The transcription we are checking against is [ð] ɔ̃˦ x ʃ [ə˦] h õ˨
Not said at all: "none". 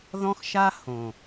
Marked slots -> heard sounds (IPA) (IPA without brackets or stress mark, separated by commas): ð, a˦